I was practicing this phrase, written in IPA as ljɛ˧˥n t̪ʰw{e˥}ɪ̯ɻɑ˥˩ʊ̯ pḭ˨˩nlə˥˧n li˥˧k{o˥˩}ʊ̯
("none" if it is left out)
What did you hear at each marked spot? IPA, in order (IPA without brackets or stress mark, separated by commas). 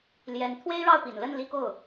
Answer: e˥, o˥˩